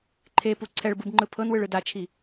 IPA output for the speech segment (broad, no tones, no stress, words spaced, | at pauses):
ǃʰepu ǀʰɛɭbɯbŋ͡ǃɯ pʰɤnwɯɭɯ dat͡ʃʰi